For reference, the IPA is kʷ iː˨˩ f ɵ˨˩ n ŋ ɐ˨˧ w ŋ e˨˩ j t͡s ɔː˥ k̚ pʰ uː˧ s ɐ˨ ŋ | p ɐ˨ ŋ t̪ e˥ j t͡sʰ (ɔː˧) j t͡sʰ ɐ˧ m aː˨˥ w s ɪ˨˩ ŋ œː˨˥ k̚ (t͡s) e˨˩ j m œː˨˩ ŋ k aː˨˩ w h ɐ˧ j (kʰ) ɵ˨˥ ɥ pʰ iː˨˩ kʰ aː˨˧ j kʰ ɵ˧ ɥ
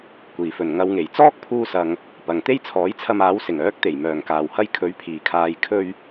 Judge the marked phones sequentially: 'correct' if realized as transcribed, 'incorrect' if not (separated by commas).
incorrect, incorrect, correct